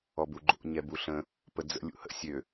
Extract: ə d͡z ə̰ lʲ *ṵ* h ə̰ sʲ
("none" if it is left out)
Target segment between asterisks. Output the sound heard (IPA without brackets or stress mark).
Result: ṵ